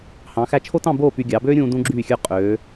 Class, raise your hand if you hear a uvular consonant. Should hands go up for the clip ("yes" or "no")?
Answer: yes